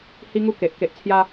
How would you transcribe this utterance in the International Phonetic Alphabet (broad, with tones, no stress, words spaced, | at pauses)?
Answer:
hi˧ŋu˧ ke˨ʔ ke˨ʔt͡sʰja˧